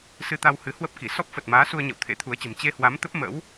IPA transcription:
s ɨ˧ t̪ a˧ w h ɨ˨˦ h w ə˦˥ p̚ k i˧˩ s ɔ˦˥ p̚ f ə˨˩ t̚ m aː˨˦ s u˧ ə̯ ɲ ə̰˧˨ w t̪ʰ ḛ˧˥ t̪ʰ u˨˦ ə̯ t͡ɕ ə̤˨˩ m t͡ɕ e˧ h w a˨˦ m t̪ ə˦˥ p̚ m ə̰˧˥ w

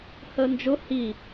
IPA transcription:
h əː n d͡ʒ ʊ h i

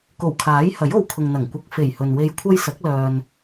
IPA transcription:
k o˨˩ w kʰ aː˨˥ j h ɐ˨˥ j o˨ w kʰ ʊ˨ ŋ n̪ ɐ˨˩ ŋ kʷ ɐ˧ k̚ f e˨˩ j h ɵ˨ n w e˧ j kʷʰ ɐ˥ j s ɐ˨˥ k̚ l œː˨ n

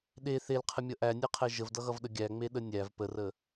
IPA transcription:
ɗ e θ e l qʰ ə mʲ ʌ ʔ æ nʲ ɛ qʰ ɛ ʒ ə v d ʌ ɣ ʌ v ɗ ə ɡʲ æ ŋ͡m e ɗ ə nʲ æ v p ə r ə

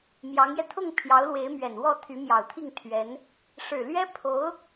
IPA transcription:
m j ɑ˧˥ ŋ j ɛ˧ t̪ʰ ʊ˥˩ ŋ pʰ j ɑ˧˥ ʊ̯ l w e˧˥ ɪ̯ m ɥ ɛ˨˩ n w ɔ˥˩ t̪ʰ y˧˥ m j ɑ˨˩ ʊ̯ t̪ʰ i˥˩ ŋ t̪ʰ ɥ ɛ˧˥ n | ʂ ɻ̩˨˩ l ɥ ɛ˥ pʰ o˧˥ ʊ̯

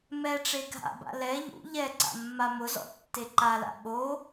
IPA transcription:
m ɛ ʈ͡ʂ e ɡʱ a̰ b a̰ l ɛ ʎ ṵ ʎ ɛ ǀ a̰ mː a m ʊ z ɔ̰ tː e ǃ a l a̰ ɓ o

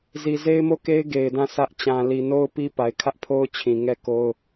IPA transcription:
z i˨ z e˦ ɪ̯ m o˦˨ k e˦ ɪ̯ ɡ e˨ ɪ̯ d ã˦˨ s ä˦ ʔ t͡ɕ ã˨ l i˨ n o˦ ʊ̯ p i˦ p a˨ ɪ̯ kʰ ä˦ ʔ pʰ o˦ ʊ̯ t͡ɕʰ ĩ˨ ŋ ɛ˦˨ k o˦ ʊ̯

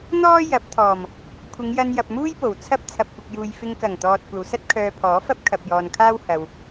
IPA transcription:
n̪ ɔː˥ j ɐ˨˥ p̚ t̪ʰ ɔː˨˩ m | kʷʰ ɪ˨˧ ŋ j ɐ˧ n j ɐ˨ p̚ m uː˥ j p o˨˩ w t͡sʰ ɐ˥ p̚ t͡sʰ ɐ˨ p̚ kʷ ɪ˨ k̚ j uː˨ j f ɪ˧ ŋ k ɐ˨˩ ŋ t̪ ɔː˨ t̚ kʷ ɐ˨ w s ɐ˥ t̚ kʰ œː˧ pʰ ɔː˨˥ f ɐ˥ p̚ kʰ ɐ˨ p̚ j ɔː˨ n kʰ aː˥ w h ɐ˧ w

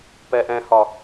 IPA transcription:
p ɛ ʔ ɛ̃ h ɒ

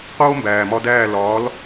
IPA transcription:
q oː˥ m b æː˩ m ɒ˧ d æː˥˩ l ɒː˩˥ l

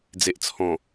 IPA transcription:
d͡z e˨ ʔ t͡sʰ ɔ̃˨˩

